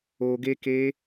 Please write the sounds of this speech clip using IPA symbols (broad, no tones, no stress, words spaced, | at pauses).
oɡeke